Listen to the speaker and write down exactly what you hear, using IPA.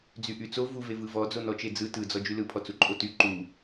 d͡zyʔyt͡so vuve vɯvɔ d͡zonɔt͡ʃed͡zɯ tɯd͡zɔ d͡ʒylɯpʰɔt͡su ǃʼoty ǃu

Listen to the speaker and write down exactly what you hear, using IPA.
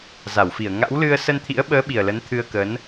za˧˩wfi˧˩ə̯ ŋa̰˧˥wlɨ˧ə̯ sə˧nt̪ʰḭ˧˥ə̯ɓəː˨˦ ɓi˨˩ə̯lə˨˦nt̪ʰɨ˧ə̯kə˨˦n

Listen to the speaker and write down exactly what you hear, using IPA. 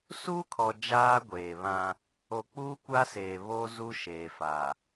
su˦kʰɔ˨ d͡ʒaː˦ɡʷeː˨βã˦ | o˨k͡puː˦ kʷa˦seː˨ βo˦ zu˦ʃeː˨fa˨

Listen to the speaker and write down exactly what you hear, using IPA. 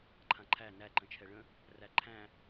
ǃʰãǃʰæ næ ǃə̃t͡ʃʰɛɭə̃ | ræǃʰæ̃

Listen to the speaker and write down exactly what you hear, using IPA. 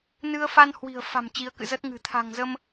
nɨ˧ə̯fa˧nhwi̤˨˩ə̯ fa̤˨˩m t͡ɕi˨˦ə̯kɨ̰˧˨zəː˦˥t̚ ŋɨ̤˨˩ t̪ʰa̤˨˩ŋzə˧m

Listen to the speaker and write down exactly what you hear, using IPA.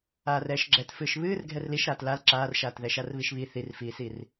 aːrɛːʃɡ͡ǁɛt fɨːʃβɨːr ɡʱɛrliʃɾaːt lal ǁaːrʃaːt ðɛʃarβiʃβi θirfiːsir

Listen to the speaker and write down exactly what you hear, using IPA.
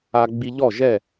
a˧ɡ͡bi˧ ʎɔ˥˩ʒɛ˥˩

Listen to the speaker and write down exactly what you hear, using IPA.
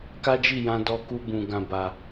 ka˦d͡ʒi˦˨jã˧ dɔ˧ku˧bũ˨ ɡã˨ba˨

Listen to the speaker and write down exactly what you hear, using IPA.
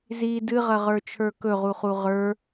zi dɨʁɐʁə˞t͡ʃʰə˞ kɵʁuχu ʁə˞

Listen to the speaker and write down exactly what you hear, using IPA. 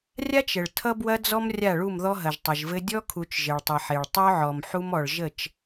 rʲa˦t͡ʃ ə˨ɭ tʰʌ˦bwɐ˦d͡zɔ˦m rʲa˦˨ɭu˦˨m ðɔ˦ɦɐ˨ʒ tˤɘ˨ʒvɘ˦ dʲɔ˦kʰu˨t͡ʃ ʒɘ˨ɭtˤʌ˨ħe˨ɭ tˤœ˦ʕɔ˨m ħu˦mɔ˨ɭ ʒə˦˨t͡ʃ

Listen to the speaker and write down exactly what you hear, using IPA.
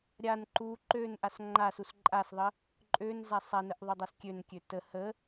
ɾʲan ǃu ǃønʔas ŋ͡ǃasus ǃʼasðˤə | ǃʼønza sˤanəʔðˤødˤas kʲønkʲø tə hə

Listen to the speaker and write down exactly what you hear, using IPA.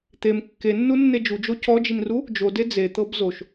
t̪em kːenːunːe d͡ʒud͡ʒo cɔd͡ʒinru | d͡ʒode d͡zet̪ɤb zoʃ

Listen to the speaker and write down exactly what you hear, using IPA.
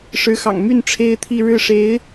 ʂɻ̩˧˥xɑ̰˨˩ŋmy˥˩n ʈ͡ʂʰe˥ɪ̯t̪ʰi˥˧ ɻɻ̩˥˩ʂe˧˥ɪ̯

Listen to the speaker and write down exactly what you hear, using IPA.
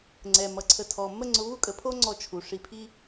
ŋ͡ǀɛ˩ mʌ˩ ǀʰə˩ tʰɔ˩ mə˥ŋ͡ǀʊ˧ βu˥kʼə˩pʰo˥ ŋ͡ǀɔ˧t͡ʃʰu˩ʂi˧pʰi˥

